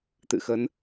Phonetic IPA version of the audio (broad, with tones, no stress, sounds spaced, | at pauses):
t̪ ɨ̰˧˨ x ə˨˦ n